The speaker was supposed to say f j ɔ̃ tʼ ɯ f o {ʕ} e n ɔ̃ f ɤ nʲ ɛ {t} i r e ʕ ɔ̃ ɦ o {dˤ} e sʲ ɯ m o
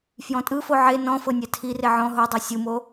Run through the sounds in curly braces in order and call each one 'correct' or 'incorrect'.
correct, incorrect: tʰ, correct

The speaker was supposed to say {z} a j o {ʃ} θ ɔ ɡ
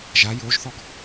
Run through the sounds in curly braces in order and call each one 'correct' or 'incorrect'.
incorrect: ʒ, incorrect: ʒ

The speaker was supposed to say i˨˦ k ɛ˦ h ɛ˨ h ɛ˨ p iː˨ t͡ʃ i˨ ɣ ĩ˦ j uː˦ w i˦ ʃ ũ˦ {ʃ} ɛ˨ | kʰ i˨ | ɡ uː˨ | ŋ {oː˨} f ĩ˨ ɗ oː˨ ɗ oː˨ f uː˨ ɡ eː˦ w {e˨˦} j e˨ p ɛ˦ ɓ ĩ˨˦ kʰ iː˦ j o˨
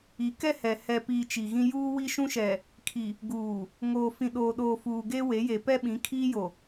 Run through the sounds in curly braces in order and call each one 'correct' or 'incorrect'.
correct, correct, correct

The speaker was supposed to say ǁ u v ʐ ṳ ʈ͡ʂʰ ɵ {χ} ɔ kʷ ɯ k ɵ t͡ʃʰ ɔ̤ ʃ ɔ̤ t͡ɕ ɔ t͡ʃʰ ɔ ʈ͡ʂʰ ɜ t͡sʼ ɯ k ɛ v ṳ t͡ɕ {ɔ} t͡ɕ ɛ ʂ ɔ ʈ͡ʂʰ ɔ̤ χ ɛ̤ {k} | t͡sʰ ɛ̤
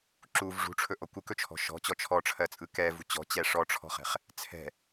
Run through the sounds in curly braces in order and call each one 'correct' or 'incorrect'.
incorrect: ʔ, incorrect: ɔ̤, incorrect: χ

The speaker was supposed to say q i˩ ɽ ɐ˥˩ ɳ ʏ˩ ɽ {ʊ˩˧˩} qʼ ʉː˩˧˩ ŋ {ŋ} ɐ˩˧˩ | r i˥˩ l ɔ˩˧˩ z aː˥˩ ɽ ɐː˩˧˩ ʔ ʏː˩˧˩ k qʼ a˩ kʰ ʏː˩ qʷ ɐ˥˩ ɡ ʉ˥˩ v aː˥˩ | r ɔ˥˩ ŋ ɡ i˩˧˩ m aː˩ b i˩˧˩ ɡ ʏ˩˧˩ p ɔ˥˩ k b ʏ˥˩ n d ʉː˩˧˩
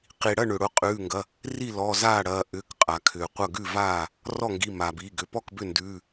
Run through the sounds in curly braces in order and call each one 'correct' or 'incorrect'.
correct, incorrect: ɡ

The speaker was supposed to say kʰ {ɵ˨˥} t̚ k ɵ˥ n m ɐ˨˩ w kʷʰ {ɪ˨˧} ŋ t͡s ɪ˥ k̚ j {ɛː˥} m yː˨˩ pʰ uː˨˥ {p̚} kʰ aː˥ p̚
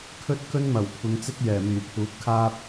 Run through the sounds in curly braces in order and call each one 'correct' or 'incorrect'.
incorrect: ɵ˥, correct, incorrect: ɛː˨˩, incorrect: t̚

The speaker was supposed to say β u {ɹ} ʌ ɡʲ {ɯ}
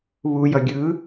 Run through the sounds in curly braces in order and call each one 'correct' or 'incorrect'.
incorrect: j, correct

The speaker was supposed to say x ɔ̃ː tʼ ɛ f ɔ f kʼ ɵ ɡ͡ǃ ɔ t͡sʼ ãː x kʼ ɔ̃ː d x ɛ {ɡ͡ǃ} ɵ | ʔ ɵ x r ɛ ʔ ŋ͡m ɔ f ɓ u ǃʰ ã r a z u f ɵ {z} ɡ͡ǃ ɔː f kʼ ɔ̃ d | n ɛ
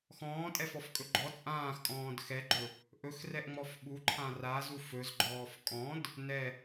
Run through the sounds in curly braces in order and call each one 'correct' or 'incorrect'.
correct, correct

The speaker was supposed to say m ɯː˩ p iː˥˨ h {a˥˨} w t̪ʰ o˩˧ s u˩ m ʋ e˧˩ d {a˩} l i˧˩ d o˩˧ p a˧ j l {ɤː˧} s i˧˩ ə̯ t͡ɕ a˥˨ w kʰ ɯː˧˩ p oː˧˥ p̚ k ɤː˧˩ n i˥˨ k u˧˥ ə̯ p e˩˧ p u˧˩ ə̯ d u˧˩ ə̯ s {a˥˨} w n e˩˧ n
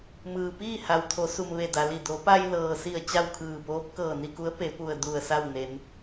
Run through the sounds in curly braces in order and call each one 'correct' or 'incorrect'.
incorrect: a˩, correct, incorrect: ɤː˩, correct

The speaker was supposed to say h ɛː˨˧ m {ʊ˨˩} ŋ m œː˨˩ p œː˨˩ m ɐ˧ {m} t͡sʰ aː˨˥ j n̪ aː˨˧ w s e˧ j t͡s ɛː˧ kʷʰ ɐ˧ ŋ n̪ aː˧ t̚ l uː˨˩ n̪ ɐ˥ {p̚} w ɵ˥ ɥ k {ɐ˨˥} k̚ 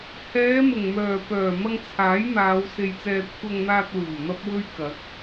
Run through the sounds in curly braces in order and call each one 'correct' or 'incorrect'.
correct, incorrect: ŋ, correct, correct

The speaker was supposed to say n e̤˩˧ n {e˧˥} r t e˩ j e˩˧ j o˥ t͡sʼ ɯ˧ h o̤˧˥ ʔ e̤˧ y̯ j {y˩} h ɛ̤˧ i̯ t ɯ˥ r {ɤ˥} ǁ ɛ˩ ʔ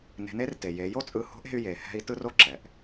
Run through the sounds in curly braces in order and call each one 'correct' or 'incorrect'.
correct, incorrect: e˩, incorrect: o˥

